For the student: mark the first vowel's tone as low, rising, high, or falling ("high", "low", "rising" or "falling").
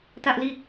high